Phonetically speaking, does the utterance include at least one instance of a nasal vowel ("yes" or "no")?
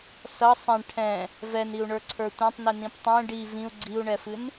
yes